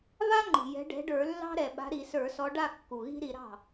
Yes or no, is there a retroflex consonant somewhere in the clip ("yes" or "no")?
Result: yes